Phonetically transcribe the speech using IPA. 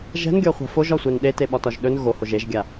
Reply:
ʒ ɛ̤ n ɡʲ ɒ χʷ a̤ f o ʒ ɒ sʷ ɛ n ɗ e t e ɓ ɒ t ɒ ʒ ɗ ɵ n ɣ o h o ʒ e ʒ ɡʲ a

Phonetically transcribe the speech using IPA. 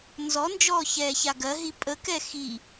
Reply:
n z ɔ n d͡ʒ ɔː ç ɛː ç a ɡ ɜ ɦ i pʼ ə k ɛ x i

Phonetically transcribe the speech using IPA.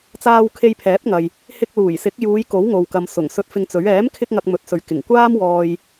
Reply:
t͡s aː˧ w kʰ e˧ j pʰ ɛː˨˥ p̚ ŋ ɐ˨ j | h ɪ˧ k̚ l uː˨˩ j s ɪ˨˥ k̚ j uː˨˧ j k o˨˥ w ŋ o˨ w k ɐ˨ m s ʊ˨˩ ŋ s ɵ˧ t̚ f ɪ˧ ŋ t͡s ɵ˨˥ ɥ ɛː˨˥ m kʰ ɪ˧ k̚ ŋ ɐ˧ k̚ m ɵ˨˥ t̚ s ɵ˨ ɥ k ɪ˨˩ ŋ kʷ aː˥ m w ɔː˧ j

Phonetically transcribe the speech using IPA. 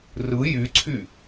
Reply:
r ɯ j y ǀʰ y

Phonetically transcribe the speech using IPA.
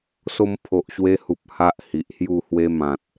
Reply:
s o˧ m pʰ o˨ ʔ ɕ w e˧ h u˨ p̚ h a˦ ʔ h i˨ ʔ h j u˥˧ h w e˧ m ã˨ t̚

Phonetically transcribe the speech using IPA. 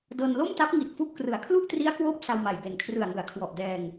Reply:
d ɤː˧ n l o˥˩ m t a˦˥ p̚ ŋ i˨˩ t̚ f u˥˩ ʔ k r ɯ˨˩ a̯ kʰ l u˥˩ ʔ t r i˦˥ a̯ k w oː˦˥ p̚ s a˧ w m a˨˩ j b e˨˩ n kʰ r ɯ˨˩ a̯ ŋ ɯ˩˦ a̯ kʰ w ɔ˨˩ ʔ d ɛː˧ ŋ

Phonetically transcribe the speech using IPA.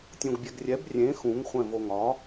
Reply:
tʲ õ ɡ bʲ ɛ ɡ rʲ ɛ b rʲ ẽ x ũ ŋ χʷ ɛ̃ v o ŋ ɒ

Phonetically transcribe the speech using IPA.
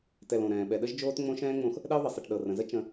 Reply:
t ɛ˨ l õ˩ ɾ ɛ̃ː˩ ɓ ɛ˨ ɗ ə˥ ʒ d͡ʒ oː˥ t ŋ͡m õ˦ ʃ ɛ̃ː˥ ŋ͡m õ˥ x | ɗ ɛ˥ ʊ̯ ðˤ ə˩ sˤ i˩ ʈ ɗ ɤ˩ r ə̃˩ z ə˥ t͡ʃ ə̃˦

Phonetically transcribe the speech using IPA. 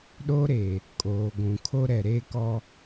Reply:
ɗ oː˦ ɾ eː˨ | kʼ oː˨ ɡʷ ũ˨ kʰ o˦ ɾ ɛ˨ ɾ eː˦ k ɔ˦

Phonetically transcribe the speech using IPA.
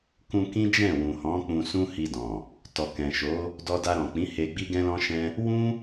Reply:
k ũ˧ k ĩ˦ d͡ʒ ɛ̃˦˨ w ũ˨ h ɔ̃˨˦ k͡p ũ˧ s ũ˦ h i˧ d ɔ̃˨ | t ɔ˨ k ɛ̃˨ ʃ o˨˦ | d ɔ˧ d a˧ ɾ ɔ̃˨ k͡p ĩ˨˦ h e˧ ɡ͡b i˦ ɡ ɛ̃˦ l ɔ̃˦ ʃ ɛ̃˦ | w ũ˦

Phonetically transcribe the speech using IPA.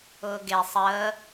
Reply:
ʊː ɡ e sˤ əː

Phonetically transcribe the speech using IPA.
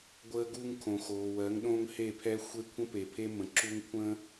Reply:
ɡʷ əː˦ ɡ uː˦ ŋ kʰ õ˨ x oː˨ w ɜ˨˦ ŋ ɗ õ˦ ŋ h e˦˨ pʰ ɛ˦ xʷ e˦ kʷʰ ə̃˦ p e˨ pʰ e˦ m ə̃˨ ǁ u˦ ŋ kʷʰ ə̃ː˦

